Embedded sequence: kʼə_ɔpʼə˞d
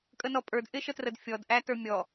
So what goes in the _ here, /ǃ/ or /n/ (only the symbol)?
n